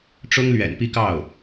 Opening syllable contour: high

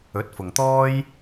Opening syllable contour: rising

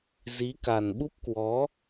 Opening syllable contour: rising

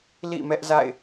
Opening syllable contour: falling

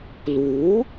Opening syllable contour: rising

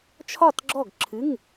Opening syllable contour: falling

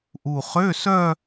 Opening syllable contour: low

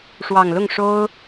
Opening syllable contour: low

